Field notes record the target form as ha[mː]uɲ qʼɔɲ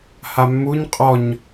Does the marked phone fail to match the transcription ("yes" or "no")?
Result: no